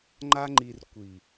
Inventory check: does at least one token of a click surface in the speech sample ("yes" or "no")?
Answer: yes